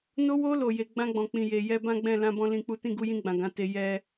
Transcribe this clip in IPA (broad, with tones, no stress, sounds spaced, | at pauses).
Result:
n o˧ w o˧ l o˨ j e˨ ɡ͡b ã˧ ɡ͡b ɔ̃˨ k͡p ĩ˨ j e˨ j ɛ˧ b ã˦ ɡ͡b ɛ̃˦˨ l ã˧ b ɔ̃˧ l ĩ˧ k͡p u˦ t ĩ˦˨ ɡ u˧ j ĩ˧ ɡ͡b ã˨ ɡ ã˨˦ t e˧ j ɛ˦